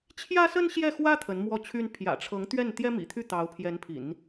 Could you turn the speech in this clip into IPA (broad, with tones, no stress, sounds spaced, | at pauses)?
t͡ɕʰ j ä˥ s ə˥ n ɕ j ɛ˥˩ x w ä˥ t̪ʰ ə˧˥ n m w ɔ˥˩ t͡ɕʰ y˥ n pʰ j ä̰˨˩ ʈ͡ʂʰ ɤ˧˥ ŋ t̪ ɥ ɛ˥˩ n t̪ j ɛ˥ m ḭ˨˩ t̪ʰ y˥˩ t̪ ɑ˧˥ ʊ̯ pʰ j ɛ˧˥ n pʰ ḭ˨˩˦ n